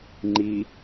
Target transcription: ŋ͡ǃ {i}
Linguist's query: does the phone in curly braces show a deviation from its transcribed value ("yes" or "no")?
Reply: no